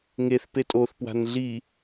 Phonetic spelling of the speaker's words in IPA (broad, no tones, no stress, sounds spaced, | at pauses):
ŋ e θ p e tʼ o θ p w a̤ n ɮ i